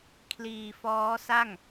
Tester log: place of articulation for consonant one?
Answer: velar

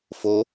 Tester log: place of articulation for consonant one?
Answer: labial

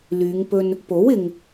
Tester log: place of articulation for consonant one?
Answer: alveolar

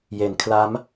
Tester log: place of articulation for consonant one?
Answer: palatal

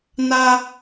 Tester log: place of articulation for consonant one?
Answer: alveolar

